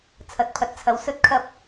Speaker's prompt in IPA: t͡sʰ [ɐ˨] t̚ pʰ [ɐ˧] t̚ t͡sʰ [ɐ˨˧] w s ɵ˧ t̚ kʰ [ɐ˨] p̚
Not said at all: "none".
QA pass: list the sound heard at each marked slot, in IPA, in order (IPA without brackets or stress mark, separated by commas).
ɐ˨, ɐ˨˥, ɐ˨˧, ɐ˧